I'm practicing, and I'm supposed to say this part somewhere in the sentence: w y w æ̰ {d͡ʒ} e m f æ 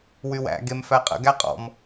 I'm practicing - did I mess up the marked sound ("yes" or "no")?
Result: yes